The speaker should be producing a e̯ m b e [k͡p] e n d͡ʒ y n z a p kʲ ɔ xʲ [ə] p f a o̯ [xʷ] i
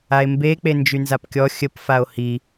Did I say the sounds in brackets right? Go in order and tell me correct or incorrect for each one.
correct, correct, incorrect: h

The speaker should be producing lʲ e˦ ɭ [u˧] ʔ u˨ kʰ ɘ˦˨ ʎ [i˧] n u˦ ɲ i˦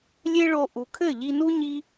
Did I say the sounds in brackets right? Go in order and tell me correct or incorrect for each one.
incorrect: o˧, correct

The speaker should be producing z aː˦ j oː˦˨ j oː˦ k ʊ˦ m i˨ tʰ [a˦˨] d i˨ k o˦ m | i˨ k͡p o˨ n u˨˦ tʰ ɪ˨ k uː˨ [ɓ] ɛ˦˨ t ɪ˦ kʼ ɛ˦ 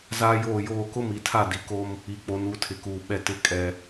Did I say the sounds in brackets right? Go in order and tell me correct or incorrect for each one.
correct, correct

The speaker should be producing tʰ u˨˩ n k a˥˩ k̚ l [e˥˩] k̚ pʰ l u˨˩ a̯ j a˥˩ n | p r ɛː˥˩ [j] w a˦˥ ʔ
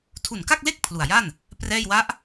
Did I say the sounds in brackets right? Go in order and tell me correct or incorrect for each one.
correct, correct

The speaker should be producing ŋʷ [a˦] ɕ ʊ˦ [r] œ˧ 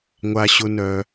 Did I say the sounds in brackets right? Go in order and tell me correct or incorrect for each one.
correct, incorrect: n

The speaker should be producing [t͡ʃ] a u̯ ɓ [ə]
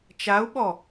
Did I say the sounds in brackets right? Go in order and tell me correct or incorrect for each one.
correct, incorrect: ɔ

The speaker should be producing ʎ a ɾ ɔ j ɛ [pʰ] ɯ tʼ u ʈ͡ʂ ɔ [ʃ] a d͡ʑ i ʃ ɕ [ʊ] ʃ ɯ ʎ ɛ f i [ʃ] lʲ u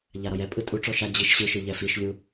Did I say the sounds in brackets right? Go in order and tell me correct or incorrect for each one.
incorrect: pʼ, correct, incorrect: ɯ, correct

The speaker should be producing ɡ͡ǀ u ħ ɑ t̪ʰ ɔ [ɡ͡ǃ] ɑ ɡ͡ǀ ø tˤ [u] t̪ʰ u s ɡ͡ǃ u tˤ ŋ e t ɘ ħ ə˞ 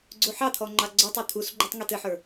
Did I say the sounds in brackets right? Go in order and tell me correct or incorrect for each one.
incorrect: ŋ͡ǃ, incorrect: ø

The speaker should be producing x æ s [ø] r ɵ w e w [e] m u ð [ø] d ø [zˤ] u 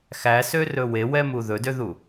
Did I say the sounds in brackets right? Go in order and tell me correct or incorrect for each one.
correct, incorrect: ɛ, incorrect: ɵ, incorrect: ð

